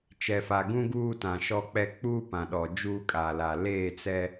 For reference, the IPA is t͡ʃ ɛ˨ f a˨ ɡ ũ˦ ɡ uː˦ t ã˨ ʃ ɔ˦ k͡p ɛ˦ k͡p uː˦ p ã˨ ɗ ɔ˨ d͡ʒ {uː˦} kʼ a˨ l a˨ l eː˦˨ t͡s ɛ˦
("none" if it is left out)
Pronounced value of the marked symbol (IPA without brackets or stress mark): uː˦